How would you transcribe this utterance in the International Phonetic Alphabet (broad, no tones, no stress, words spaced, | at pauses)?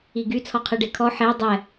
iɡy t͡sʰɔqʰeɖekʰɔ ħe dˤɛ